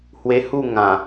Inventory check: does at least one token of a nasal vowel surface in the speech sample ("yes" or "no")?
yes